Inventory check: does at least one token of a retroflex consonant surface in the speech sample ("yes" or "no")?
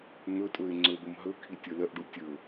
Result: yes